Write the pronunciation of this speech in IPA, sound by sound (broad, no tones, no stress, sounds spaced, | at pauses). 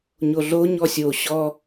ɲ o ɮ o ɲ ɔ sʲ o ɕ ɔ